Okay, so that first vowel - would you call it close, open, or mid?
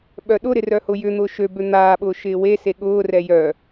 mid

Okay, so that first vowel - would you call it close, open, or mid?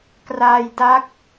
open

